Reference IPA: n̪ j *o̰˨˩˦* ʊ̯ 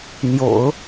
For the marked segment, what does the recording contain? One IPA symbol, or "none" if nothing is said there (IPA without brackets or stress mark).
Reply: o̰˨˩˦